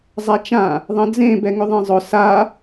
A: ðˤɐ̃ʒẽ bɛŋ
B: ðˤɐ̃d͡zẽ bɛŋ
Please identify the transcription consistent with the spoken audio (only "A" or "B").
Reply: B